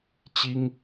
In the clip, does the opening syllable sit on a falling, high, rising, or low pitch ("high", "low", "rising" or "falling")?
high